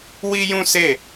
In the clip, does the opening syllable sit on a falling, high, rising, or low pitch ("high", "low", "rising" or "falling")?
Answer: high